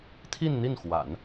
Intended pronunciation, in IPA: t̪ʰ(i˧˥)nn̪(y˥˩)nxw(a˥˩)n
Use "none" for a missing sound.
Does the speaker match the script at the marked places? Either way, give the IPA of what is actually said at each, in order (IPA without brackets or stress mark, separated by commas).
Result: i˥˧, i˥˩, a̰˨˩˦